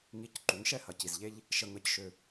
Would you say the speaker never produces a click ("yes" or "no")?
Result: no